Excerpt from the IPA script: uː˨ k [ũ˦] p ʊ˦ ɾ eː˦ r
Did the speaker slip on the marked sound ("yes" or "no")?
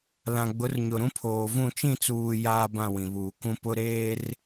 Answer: no